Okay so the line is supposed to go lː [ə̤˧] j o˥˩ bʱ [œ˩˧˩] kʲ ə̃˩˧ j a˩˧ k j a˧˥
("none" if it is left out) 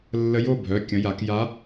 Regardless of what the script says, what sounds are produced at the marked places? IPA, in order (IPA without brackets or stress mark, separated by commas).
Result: ə˧, œ˩˧˩